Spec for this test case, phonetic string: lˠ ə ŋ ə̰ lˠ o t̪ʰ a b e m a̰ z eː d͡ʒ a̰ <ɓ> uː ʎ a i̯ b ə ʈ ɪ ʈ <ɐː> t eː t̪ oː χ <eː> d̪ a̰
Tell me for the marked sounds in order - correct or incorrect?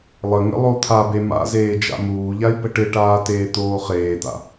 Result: incorrect: m, incorrect: aː, correct

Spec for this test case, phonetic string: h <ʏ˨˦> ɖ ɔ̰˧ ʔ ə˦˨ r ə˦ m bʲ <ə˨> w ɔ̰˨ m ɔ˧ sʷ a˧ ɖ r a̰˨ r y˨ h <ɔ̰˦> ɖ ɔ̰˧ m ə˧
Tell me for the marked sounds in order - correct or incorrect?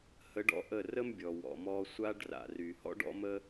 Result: incorrect: ə˨˦, incorrect: ɔ˨, correct

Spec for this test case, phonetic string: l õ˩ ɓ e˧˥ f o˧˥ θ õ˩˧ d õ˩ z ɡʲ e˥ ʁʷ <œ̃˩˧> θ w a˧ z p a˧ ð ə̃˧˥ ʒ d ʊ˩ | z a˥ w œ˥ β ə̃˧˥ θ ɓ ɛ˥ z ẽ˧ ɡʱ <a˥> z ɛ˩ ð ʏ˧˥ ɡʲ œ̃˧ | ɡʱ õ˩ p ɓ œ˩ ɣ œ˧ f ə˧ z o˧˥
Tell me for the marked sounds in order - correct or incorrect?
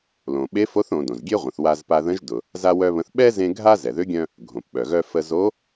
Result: incorrect: ə̃˩˧, correct

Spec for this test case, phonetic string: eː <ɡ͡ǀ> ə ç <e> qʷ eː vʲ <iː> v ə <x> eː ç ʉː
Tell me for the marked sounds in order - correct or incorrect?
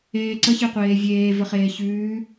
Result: incorrect: ǀ, correct, incorrect: eː, incorrect: χ

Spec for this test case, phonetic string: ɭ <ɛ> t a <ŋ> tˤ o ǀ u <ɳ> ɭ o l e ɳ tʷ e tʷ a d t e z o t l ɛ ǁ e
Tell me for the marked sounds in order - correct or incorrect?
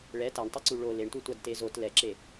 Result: correct, incorrect: ɳ, incorrect: none

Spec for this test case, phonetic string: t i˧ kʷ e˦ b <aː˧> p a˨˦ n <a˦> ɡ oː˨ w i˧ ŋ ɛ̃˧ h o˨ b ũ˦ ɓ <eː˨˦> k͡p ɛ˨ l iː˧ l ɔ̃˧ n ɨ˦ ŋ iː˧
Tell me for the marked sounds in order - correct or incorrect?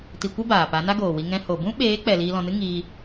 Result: incorrect: aː˨, correct, correct

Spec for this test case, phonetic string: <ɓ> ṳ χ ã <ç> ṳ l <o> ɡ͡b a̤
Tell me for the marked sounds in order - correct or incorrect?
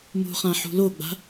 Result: incorrect: m, incorrect: ħ, correct

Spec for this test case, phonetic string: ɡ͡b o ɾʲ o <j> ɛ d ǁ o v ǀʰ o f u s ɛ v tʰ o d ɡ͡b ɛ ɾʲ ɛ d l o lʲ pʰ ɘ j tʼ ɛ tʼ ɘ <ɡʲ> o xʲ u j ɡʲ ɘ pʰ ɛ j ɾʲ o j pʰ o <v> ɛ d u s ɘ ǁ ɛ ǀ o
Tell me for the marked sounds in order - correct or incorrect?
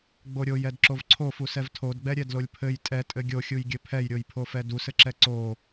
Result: correct, correct, incorrect: f

